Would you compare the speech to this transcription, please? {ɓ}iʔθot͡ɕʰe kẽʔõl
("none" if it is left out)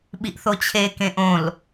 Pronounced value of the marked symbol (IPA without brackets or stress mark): ɓ